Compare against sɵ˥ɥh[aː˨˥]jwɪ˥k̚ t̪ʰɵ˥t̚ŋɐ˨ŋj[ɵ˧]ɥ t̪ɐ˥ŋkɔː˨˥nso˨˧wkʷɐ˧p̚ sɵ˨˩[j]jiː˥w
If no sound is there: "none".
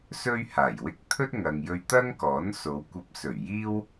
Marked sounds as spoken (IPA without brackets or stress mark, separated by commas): aː˨˩, ɵ˧, ɥ